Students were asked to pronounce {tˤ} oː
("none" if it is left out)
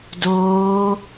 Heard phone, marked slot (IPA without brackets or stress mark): d